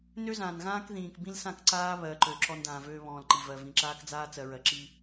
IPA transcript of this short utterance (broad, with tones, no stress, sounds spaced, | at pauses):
n ø˦ z ãː˨ n ɣ ãː˦ k ð ĩː˨ k b ĩ˦ l s ã˦˨ k ǀ aː˦ β ɜ˨ ǃ ø˨ ǁ ɔ˦ n d ãː˨ v øː˦ β ɔ̃ː˨ l ǃ i˨ v ɜ˨ v ĩ˨ ǁ aː˦ k d͡z aː˦ t͡s ɜ˨ ɹ ɜ˨ ǁ i˦